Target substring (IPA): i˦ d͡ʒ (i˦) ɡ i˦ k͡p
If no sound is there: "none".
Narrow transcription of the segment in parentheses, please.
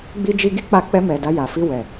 i˦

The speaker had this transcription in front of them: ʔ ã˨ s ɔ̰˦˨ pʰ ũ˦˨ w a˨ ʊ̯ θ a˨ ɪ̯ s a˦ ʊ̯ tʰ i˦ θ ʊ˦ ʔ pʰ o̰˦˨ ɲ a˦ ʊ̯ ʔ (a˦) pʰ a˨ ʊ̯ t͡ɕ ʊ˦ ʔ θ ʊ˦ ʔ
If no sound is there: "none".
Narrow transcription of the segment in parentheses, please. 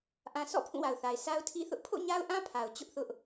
ã˦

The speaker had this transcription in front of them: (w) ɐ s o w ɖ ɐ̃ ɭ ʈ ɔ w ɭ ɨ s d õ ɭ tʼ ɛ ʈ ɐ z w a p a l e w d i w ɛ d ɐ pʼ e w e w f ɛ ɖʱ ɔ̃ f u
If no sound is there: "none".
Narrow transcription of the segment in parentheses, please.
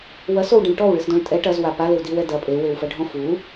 w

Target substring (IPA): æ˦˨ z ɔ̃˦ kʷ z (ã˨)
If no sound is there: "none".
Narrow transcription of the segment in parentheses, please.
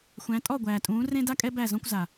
a˨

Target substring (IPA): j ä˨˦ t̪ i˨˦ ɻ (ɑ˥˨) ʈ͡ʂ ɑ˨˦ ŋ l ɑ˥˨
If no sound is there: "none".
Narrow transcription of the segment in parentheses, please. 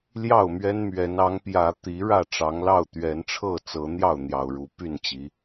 ä˥˨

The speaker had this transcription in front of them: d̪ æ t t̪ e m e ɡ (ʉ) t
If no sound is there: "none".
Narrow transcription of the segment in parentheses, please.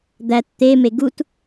u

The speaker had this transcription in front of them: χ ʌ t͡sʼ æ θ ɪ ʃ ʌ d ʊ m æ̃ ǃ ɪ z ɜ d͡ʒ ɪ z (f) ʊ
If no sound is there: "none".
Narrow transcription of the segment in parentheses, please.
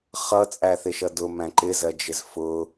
f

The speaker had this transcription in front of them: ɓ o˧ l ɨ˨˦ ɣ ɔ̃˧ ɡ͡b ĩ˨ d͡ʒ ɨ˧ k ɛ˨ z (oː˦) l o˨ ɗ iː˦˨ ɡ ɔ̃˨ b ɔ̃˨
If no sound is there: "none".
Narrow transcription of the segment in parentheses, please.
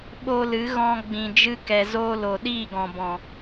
oː˧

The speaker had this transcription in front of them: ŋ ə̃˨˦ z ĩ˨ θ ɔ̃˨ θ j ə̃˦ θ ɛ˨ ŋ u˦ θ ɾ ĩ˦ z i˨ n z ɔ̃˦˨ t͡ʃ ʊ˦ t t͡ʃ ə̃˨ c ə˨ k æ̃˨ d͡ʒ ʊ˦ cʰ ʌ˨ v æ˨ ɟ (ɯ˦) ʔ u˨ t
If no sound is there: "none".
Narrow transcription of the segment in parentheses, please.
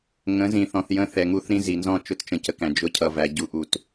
u˦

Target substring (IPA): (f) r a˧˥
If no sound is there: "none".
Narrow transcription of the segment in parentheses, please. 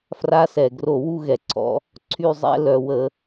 f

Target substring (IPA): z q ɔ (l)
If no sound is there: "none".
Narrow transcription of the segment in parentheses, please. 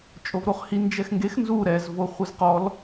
l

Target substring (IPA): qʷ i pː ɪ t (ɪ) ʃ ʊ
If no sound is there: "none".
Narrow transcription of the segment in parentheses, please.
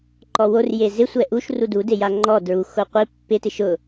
ɪ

